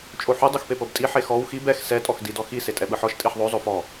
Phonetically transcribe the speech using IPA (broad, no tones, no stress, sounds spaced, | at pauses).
t͡ʃʼ o ħ u dˤ u x p e p ɤ b tʼ i ħ e x ɔ w x i b ɛ x s ɛ tʼ ɔ x d i d ɔ x i s e tʼ ɛ ɓ ɯ ħ ɔ ʃ tʼ i ħ ðˤ o zˤ o f ɔ